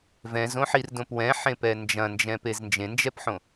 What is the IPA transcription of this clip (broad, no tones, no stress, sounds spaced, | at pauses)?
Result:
v ɛ̃ z õ ħ i r d õ p w ɛ̃ ħ ẽ p ɛ n d͡ʒ ɐ̃ n d͡ʒ ɛ̃ p e z n d͡ʒ ẽ n d͡ʒ ɛ p ħ õ